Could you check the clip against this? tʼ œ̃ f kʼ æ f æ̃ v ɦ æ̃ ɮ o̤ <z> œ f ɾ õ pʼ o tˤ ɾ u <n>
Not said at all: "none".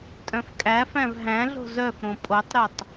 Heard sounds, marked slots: z, tˤ

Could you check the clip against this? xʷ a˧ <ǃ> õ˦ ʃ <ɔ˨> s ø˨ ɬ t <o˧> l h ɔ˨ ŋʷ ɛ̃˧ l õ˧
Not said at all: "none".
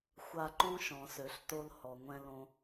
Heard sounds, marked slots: ǃ, ɔ̃˨, o˧

